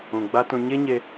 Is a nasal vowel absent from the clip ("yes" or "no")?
no